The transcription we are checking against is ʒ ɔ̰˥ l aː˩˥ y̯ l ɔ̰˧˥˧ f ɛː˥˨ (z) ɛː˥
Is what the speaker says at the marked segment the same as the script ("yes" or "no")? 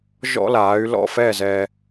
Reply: yes